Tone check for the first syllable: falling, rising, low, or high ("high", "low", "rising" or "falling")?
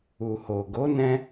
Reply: low